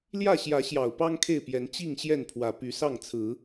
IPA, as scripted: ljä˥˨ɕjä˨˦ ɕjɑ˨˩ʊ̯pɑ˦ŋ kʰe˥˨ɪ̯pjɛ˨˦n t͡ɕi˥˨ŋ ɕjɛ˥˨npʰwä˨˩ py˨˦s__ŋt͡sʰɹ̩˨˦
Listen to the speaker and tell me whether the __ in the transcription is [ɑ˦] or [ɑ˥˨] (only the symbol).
ɑ˥˨